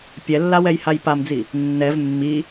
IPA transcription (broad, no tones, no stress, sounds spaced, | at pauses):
pʲ ɛ lː a w ɛ j h a j p a m d͡z i | nː ɛ v mː i